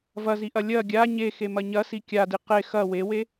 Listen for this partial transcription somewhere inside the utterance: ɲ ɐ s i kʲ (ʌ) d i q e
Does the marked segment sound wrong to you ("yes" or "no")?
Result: yes